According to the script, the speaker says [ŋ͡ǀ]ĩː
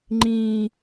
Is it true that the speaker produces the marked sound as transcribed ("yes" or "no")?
no